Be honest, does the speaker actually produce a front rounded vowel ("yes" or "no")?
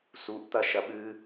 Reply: no